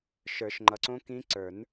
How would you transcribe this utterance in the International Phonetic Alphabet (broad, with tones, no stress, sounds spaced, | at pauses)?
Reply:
ʃ ə˞˨˩˦ ʃ ŋ͡ǃ ʌ˨ ǀ õ˦˥ k ĩ˦˥ ǀ ə˞˨˩˦ n